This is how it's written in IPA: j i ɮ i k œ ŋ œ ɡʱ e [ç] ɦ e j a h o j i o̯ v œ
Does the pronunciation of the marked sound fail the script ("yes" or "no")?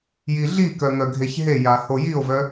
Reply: no